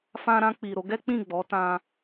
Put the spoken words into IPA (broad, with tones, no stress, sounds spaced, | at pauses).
f ã˧ ɾ ã˧ k͡p i˨ ɾ o˨˦ ɡ ɛ˦ k͡p ĩ˦˨ ɡ͡b ɔ˨˦ t ã˧